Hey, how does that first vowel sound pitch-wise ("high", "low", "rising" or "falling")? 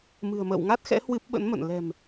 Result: low